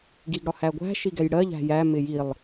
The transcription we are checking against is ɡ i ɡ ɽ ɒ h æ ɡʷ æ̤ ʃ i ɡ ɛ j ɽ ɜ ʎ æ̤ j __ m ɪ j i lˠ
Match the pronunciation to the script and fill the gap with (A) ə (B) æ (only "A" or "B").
B